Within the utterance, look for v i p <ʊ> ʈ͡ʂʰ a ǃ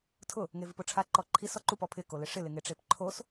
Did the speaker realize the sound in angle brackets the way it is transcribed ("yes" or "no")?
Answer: yes